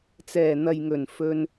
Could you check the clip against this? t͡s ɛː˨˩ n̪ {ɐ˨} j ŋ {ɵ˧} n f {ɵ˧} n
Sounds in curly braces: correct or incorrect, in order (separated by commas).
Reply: correct, incorrect, correct